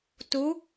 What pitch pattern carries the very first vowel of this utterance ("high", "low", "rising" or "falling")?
rising